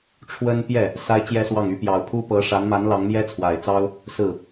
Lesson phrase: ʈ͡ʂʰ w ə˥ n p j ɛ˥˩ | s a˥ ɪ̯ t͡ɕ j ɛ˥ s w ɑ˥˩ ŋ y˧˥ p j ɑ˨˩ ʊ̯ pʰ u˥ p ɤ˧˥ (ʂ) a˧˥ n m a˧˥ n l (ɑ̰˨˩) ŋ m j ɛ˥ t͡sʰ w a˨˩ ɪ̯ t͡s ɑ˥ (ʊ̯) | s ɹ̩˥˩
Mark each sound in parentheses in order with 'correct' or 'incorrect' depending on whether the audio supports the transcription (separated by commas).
correct, incorrect, correct